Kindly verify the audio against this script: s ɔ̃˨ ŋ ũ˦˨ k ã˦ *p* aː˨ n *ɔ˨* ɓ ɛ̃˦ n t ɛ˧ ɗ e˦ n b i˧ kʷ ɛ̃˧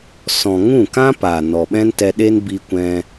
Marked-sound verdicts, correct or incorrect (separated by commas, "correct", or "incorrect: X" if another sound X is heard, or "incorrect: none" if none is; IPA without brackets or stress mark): correct, correct